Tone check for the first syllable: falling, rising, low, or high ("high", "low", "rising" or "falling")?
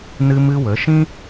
high